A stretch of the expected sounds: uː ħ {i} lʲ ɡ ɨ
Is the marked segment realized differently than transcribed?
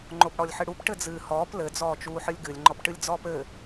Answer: yes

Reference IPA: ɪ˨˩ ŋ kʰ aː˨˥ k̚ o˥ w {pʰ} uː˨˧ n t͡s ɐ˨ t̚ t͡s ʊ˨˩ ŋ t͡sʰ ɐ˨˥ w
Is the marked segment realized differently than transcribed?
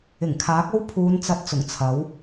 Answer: no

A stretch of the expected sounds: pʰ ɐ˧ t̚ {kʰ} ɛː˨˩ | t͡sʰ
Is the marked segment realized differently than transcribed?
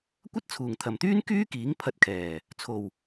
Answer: no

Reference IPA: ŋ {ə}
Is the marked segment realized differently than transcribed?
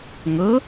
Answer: no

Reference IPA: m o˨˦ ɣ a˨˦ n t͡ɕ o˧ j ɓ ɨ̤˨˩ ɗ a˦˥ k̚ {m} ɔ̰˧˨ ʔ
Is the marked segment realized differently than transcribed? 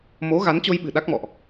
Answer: no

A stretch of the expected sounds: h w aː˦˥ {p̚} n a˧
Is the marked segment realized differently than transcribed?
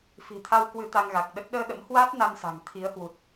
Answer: yes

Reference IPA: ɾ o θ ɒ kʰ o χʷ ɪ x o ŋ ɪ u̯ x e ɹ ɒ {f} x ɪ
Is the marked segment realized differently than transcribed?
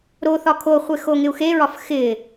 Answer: no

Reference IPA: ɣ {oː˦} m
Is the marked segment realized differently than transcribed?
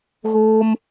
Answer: no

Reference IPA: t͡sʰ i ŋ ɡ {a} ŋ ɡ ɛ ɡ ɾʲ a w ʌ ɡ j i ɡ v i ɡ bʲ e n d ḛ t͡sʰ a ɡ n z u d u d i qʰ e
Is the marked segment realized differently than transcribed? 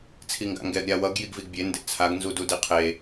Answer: yes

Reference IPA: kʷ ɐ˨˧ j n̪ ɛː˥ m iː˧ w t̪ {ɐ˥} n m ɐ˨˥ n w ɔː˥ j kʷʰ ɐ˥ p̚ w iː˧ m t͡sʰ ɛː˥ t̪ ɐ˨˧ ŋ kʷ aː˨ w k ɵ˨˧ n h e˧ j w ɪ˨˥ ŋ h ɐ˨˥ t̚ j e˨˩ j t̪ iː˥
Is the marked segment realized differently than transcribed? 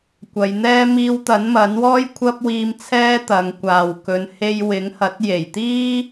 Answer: yes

